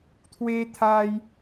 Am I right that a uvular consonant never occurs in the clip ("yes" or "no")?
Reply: yes